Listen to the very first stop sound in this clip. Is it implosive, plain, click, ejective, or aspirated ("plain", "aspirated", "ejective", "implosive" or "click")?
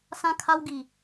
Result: aspirated